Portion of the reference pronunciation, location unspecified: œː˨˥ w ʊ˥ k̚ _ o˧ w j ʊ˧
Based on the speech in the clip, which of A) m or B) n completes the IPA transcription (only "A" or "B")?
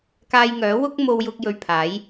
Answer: A